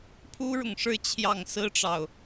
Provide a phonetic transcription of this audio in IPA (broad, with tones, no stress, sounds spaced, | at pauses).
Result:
pʰ u˥ ɻ ʊ˨ ŋ ʂ ɻ̩˥˧ t͡ɕʰ j ɑ˥˩ ŋ s ɹ̩˥ ʈ͡ʂ ɑ˨ ʊ̯